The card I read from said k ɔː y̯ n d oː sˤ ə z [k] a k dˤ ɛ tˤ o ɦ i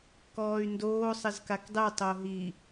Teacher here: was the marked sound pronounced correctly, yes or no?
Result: yes